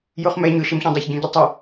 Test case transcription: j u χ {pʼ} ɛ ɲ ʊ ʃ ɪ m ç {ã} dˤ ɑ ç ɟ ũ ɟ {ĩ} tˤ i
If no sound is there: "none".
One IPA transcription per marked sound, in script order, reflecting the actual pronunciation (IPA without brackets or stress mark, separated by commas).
m, ɑ̃, i